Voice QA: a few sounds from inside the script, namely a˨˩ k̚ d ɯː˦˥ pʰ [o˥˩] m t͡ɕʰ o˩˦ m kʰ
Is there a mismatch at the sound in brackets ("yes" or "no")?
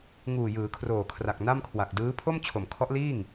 no